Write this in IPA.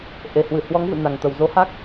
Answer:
ʔ e˨˩ h w ɨ˧˩ h w ɔ˨˦ ŋ v ɨ̰˧˨ n a˨˩ ŋ t̪ ə˨˩ w z o˨˦ h a˦˥ k̚

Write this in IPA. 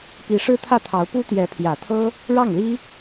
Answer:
p i˧˥ ʂ ɻ̩˥ t̪ʰ ä˥˩ t̪ʰ ɑ˧˥ ʊ̯ p u˥ t̪ j ɛ˧˥ pʰ j ä˨˩ t̪ʰ ɤ˥ | ɻ ɑ˥˩ ŋ l i˥

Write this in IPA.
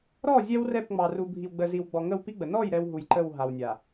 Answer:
ɾ ɔ˦˨ zʲ ɛ˦ w r ɛ˦˨ p ŋ͡m ɑ˨ r u˨ bʱ i˨ w ɡ͡b ə˨ z i˨ w ɡ͡b ɔ˨ ŋ ə˦˨ w p i˦ ɡ͡b ə˨ n ɔ˦˨ j ɾ ɛ˦ w ɦ u˨ j ǃ ə˦˨ w ɦ a˨ w nʲ a˨

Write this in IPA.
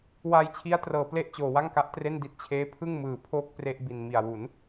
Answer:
w aː˧ j t͡ɕʰ i˦˥ a̯ t r ɤː˩˦ p l e˦˥ ʔ t͡ɕ oː˩˦ w a˥˩ ŋ k a˦˥ ʔ t r e˥˩ n d i˦˥ t̚ t͡ɕʰ eː˦˥ pʰ ɯ˥˩ ŋ m ɯː˩˦ pʰ oː˥˩ k̚ p r e˥˩ ʔ b i˨˩ n m i˨˩ a̯ w u˩˦ n

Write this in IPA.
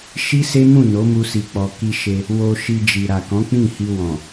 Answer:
ʃ i˦ s e˦ m ũ˦˨ n o˨˦ m u˧ s i˨ k͡p ɔ˨ k i˧ ʃ e˧ | w o˧ ʃ i˧ d͡ʒ i˨ ɾ a˨ k ɔ̃˨˦ k͡p ĩ˦˨ h i˧ w ɔ̃˨

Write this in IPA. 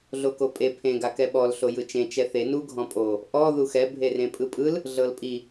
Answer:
ɮ o k o pʼ e pʰ ẽ ɡ a k ɛ ɓ ɔ l ɬ o j ɯ t͡ʃ ẽ t͡ʃ ɛ θ e n u ɡʱ ɔ̃ pʼ o | ʔ ɔ ð u x ɛ bʱ e r ẽ pʼ ɯ pʼ ɯ l | ɮ ɤ l pʼ i

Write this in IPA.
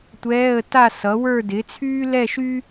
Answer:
tʷ ɛː˧˥˧ ə̯ t a˥˧ s ʌ˨˥ w ə˞˥˧ d ɪ˨˥ t͡sʰ yː˥ l ɛ˥˧ ʃ y˥

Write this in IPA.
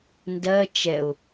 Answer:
n d ɜ t͡ʃ ɛ ʊ̯

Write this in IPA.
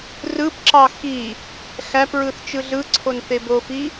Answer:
r ɯ p ǁ ɑ x i | x æ p ɹ ɯ θ t͡ʃ ɯ ɮ ɯ ǀʰ o n θ e b o f i

